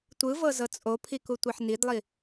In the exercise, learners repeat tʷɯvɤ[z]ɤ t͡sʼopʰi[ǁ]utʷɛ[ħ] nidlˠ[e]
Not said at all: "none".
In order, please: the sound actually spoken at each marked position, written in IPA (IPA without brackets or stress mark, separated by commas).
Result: z, k, ħ, i